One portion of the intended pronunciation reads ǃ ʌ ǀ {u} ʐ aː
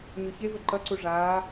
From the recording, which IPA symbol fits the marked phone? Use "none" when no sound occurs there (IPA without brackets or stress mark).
u